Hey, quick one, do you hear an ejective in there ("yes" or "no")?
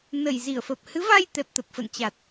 no